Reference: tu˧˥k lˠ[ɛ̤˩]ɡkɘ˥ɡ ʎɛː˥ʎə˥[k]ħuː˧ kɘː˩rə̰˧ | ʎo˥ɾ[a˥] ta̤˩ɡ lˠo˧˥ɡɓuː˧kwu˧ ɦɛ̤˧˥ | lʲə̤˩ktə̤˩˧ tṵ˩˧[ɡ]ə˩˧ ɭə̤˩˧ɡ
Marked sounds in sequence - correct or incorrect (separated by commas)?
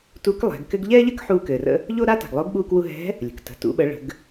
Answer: incorrect, correct, correct, incorrect